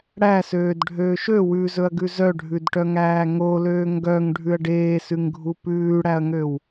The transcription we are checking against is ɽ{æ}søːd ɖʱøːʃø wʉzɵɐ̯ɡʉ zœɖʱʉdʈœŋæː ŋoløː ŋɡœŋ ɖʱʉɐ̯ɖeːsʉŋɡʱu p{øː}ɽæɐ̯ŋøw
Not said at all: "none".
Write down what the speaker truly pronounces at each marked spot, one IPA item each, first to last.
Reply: æ, ʉː

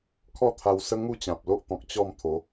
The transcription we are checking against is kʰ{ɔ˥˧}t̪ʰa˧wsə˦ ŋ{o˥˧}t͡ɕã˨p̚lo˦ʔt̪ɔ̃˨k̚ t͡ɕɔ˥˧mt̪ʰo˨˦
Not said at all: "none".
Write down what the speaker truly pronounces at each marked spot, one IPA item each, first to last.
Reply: ɔ˥˧, u˥˧

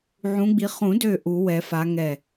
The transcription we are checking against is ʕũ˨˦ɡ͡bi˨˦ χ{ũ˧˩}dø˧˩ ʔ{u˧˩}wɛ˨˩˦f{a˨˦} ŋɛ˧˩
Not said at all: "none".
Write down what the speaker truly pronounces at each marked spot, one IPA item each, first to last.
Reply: ũ˨˩˦, u˨˩˦, a˨˦

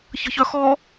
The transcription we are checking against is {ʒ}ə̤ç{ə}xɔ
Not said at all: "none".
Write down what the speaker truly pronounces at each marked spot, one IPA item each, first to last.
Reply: ç, œ

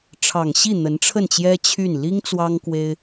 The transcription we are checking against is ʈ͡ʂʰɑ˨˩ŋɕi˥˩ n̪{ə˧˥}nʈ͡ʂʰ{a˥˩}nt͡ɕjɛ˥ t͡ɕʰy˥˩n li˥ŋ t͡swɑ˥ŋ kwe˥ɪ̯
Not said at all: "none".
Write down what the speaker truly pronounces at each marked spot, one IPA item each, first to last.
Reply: ə˧˥, ə˥˩

